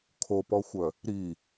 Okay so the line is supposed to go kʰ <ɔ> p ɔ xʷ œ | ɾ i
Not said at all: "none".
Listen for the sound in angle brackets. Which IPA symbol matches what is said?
o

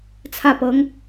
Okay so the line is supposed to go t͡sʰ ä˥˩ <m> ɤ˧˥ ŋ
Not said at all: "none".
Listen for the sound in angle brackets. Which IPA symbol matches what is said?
p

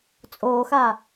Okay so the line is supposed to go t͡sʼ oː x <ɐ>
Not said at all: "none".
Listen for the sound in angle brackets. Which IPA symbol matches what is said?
a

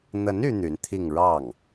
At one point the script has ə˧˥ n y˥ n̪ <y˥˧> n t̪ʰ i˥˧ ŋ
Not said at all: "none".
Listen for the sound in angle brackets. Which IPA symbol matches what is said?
y˧˥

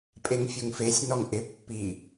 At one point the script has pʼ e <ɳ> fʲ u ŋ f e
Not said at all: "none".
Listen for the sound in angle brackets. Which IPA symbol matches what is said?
ŋ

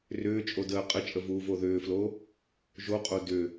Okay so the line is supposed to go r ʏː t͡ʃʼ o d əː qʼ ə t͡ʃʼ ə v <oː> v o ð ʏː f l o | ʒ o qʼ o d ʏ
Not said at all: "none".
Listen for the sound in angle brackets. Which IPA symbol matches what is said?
uː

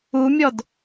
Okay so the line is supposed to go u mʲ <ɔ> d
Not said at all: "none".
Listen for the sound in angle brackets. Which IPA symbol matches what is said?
ɔ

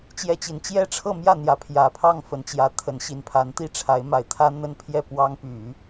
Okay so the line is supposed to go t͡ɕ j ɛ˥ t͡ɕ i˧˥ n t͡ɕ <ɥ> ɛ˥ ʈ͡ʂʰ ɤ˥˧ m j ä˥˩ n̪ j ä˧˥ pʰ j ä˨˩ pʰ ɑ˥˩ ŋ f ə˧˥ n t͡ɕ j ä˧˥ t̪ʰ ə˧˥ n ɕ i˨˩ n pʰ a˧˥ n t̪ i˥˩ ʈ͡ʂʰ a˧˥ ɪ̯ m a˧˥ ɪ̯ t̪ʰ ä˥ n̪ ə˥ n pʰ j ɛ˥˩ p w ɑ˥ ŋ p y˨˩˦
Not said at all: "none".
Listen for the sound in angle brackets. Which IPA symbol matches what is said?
j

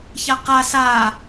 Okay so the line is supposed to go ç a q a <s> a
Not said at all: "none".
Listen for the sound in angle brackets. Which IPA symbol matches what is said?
s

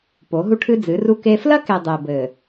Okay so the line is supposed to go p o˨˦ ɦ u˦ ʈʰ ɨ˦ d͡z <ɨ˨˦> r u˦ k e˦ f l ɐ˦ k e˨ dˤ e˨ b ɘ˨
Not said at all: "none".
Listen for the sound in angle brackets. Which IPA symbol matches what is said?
ɨ˨˦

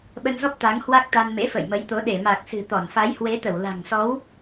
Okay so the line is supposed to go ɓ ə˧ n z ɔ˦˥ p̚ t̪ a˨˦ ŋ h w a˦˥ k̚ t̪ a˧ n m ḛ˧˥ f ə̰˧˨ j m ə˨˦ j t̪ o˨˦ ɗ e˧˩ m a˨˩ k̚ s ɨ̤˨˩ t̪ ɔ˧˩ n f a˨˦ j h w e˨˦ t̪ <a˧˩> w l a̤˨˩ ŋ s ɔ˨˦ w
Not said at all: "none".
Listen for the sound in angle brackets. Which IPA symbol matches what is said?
ə˧˩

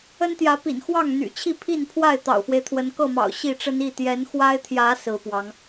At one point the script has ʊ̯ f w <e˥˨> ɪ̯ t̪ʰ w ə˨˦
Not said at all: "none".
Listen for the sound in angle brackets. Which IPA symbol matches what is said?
e˦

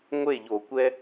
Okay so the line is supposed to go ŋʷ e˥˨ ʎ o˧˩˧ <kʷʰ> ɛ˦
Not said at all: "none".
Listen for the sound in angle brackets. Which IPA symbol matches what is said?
kʷ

